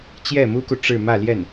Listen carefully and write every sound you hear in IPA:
t͡ɕ j ɛ˥˩ m u˥ k u˨ ʈ͡ʂ ɻ̩˥˧ m ä˥˧ l j ɛ˥˩ n

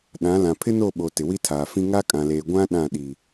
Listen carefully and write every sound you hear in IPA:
ɗ ã˨˦ l ã˨ pʰ ɪ˦ n o˦˨ ɓ o˨ t ɪ˨ w i˦ tʰ aː˨ f ĩ˦ ŋ a˦ kʼ ã˨ l eː˨ ɡʷ ã˦ ɗ ã˦˨ ɗ i˨

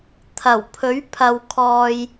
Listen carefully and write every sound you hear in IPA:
t̪ʰ ɐ˨˩ w pʰ ɵ˨˥ ɥ pʰ ɐ˨ w kʰ ɔː˨ j

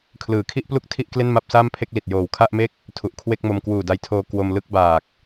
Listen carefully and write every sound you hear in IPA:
kʰ l ɯː˩˦ kʰ i˥˩ ʔ p l u˥˩ k̚ tʰ i˥˩ ʔ k l e˥˩ n m a˥˩ p̚ s aː˥˩ m pʰ e˥˩ k̚ l i˨˩ t̚ j oː˨˩ w kʰ a˥˩ ʔ m e˥˩ k̚ | tʰ u˨˩ ʔ kʰ w e˥˩ k̚ m o˧ m k w uː˨˩ d a˧ j tʰ oː˧ k w o˧ m l ɯ˥˩ k̚ b aː˨˩ k̚

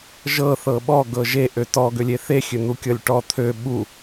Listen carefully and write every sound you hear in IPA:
ʒ ɤ θ ɤ ɓ ɔ ɡ ɤ ʒ e ʔ ø t ɔ ɡ ø lʲ e θ e xʲ ø n̪ u kʲ ɤ lʲ ʈ ɔ t̪ʰ ø ɓ u

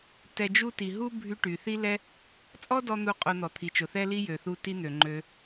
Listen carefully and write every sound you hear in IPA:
t ɛ˧ d͡ʒ u˥ t i˩ ɦ u˥ bʱ y˧ ʈ y˩ θ i˥ l ɛ˥ | t͡sʼ ɔ˥ d ɔ˧ n̪ u˥ qʼ o˧ n̪ ɔ˩ t̪ʰ i˩ t͡ʃ ʊ˩ θ ɛ˥ l i˥ j ø˩ θ u˧ t i˥ n̪ ø˩ ŋ͡ǃ ø˧

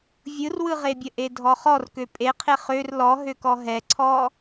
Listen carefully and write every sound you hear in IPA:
vʲ ɯ r w ɯ ʁ e bʲ ə ʔ e dʱ ɔ χ ɔ r k ø pʼ e qʰ e χ ø r l ɔ ɦ ø k ɔ ɦ ɛ ǀʰ ɔ

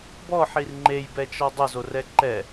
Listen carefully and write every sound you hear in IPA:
b ɔ ħ i r ŋ͡ǃ e j b ɛ t͡ʃ ɔ dˤ ɪ z o r ɛ ǃ ɛ

